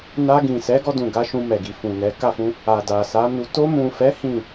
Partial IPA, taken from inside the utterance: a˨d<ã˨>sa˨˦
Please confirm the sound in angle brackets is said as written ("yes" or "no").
no